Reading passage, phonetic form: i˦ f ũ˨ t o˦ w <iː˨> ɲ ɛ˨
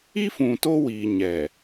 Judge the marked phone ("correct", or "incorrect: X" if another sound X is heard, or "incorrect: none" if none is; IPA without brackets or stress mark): correct